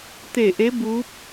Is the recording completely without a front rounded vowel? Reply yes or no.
yes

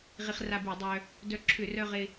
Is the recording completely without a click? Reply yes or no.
no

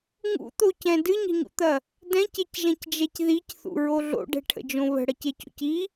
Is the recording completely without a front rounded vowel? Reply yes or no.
yes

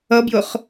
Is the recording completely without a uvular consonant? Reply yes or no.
no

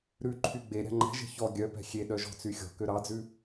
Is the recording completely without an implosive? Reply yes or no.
no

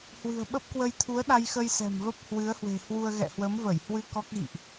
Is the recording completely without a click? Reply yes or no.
yes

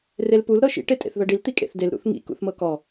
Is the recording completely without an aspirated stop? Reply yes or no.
yes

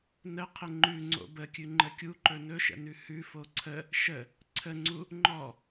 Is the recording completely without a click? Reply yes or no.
no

